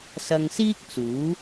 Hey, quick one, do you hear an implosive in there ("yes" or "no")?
no